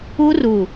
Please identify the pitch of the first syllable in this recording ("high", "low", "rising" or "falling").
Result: high